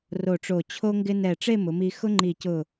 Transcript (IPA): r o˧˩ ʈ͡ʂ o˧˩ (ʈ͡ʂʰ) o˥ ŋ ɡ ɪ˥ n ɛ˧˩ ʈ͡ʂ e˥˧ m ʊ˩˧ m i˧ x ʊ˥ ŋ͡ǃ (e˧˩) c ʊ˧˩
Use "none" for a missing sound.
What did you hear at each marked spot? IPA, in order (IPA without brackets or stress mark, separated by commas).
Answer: t͡ɕʰ, i˧˩